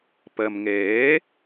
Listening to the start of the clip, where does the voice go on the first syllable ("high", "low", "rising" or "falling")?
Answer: low